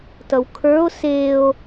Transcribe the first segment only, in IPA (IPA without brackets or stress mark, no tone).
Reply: t